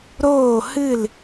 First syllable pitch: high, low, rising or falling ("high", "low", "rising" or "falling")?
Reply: falling